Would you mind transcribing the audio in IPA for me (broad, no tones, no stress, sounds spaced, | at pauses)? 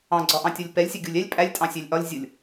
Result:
ɑ̃ ɡ͡ǀ ɒ ʔ ɑ̃ tʲ ɒ lʲ p ɛ lʲ sʲ ʊ ɡʲ u lʲ ɛ lʲ pʼ æ lʲ tʼ ɑ̃ sʲ æ lʲ ʔ ɒ lʲ zʲ ʊ lʲ